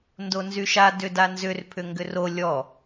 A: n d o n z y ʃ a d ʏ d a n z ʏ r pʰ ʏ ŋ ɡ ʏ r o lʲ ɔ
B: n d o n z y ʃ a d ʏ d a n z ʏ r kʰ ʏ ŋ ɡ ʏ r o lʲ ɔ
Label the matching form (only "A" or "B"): A